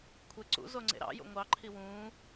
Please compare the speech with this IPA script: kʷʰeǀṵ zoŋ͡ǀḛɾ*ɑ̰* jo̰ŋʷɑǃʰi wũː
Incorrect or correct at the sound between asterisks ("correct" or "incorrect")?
correct